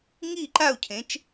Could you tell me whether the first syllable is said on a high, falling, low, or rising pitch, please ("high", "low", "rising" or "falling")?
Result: falling